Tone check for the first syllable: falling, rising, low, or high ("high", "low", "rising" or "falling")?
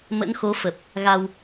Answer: rising